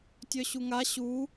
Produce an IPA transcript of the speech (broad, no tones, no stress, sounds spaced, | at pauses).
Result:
tʲ œ ɕ u ŋ a ɕ u